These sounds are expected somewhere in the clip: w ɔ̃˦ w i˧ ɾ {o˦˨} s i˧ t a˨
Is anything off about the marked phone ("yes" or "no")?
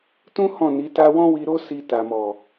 yes